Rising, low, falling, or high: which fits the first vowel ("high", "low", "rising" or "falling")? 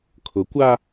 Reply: rising